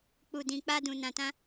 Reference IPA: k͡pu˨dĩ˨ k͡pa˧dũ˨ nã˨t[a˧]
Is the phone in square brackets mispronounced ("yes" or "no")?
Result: yes